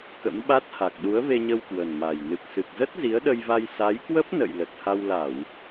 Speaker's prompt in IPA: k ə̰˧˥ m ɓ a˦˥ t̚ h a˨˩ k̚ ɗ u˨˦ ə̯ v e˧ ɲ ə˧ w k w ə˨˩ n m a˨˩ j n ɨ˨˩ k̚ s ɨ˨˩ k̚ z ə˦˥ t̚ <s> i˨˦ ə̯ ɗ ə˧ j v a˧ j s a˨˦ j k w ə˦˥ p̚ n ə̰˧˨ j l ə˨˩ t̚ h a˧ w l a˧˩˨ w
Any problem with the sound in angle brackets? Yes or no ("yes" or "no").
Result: yes